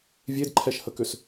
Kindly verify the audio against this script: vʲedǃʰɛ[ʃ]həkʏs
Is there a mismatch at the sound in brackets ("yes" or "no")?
no